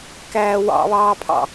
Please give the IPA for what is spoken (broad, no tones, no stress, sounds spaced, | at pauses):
k æː w ɑ̰ β ɑː pʰ ɑ̰